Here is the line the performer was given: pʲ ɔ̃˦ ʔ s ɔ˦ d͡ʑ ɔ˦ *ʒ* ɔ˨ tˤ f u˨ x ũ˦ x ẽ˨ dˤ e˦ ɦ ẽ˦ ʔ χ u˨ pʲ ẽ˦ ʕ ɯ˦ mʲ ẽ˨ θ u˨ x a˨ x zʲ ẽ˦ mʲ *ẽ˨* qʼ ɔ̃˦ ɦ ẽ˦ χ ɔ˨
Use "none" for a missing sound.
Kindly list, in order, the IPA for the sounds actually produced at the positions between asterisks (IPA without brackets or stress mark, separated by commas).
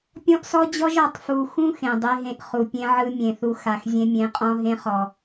ʒ, ẽ˨˦